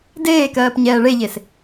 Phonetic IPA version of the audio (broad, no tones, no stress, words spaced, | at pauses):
deːkɜːp ɲɛːɭeʎes